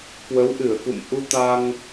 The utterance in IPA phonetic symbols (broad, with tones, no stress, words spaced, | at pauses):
kwə˨˦wʔɨ˧˩ə̯kṵ˧˨m ʔu˧t̪a˧ŋ